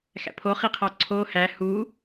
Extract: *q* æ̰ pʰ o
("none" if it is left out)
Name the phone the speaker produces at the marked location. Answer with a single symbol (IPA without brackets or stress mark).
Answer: x